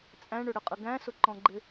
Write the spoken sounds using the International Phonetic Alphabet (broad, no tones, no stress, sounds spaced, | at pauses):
t͡sʼ æ̃ ɳ ʊ ɽ ə qʼ ə ɡ æ̃ s ʊ ǃ ɔ̃ ɡ͡ǃ ɪ